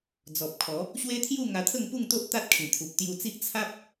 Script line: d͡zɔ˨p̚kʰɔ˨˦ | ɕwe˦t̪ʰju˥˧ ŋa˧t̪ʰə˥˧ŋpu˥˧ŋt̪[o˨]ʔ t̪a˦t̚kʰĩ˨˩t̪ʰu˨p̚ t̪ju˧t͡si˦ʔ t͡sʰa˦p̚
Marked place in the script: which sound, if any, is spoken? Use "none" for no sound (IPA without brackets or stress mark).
o˦